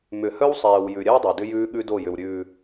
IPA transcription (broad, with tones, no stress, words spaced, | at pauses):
mʏ˨hœ˦wsˤɛː˨w jʉ˨ ɾʲɛ˦wdˤœ˨ dʏ˦ jʉː˦ ɠʉ˦do˦˨jʏ˨w ɾʲʉː˨